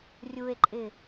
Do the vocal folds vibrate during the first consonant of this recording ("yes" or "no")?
yes